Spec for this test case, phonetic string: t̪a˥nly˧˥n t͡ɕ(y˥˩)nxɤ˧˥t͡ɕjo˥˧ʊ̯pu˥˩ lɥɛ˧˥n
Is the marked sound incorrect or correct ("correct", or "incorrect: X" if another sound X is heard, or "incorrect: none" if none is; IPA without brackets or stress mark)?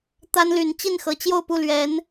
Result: incorrect: i˥˩